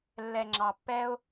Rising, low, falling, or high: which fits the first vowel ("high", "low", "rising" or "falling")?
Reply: low